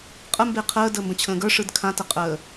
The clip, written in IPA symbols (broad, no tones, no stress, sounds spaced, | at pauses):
qʼ ə m b e qʰ əː d əː m b ə̃ t͡ɕʰ ə̃ː ɡ ə˞ ʂ ɯ d kʰ ã t ə qʼ əː